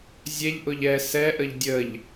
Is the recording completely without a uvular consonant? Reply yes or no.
yes